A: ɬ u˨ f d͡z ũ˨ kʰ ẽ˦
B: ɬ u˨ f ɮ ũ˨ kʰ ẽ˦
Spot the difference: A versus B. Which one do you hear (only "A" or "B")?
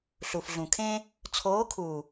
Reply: B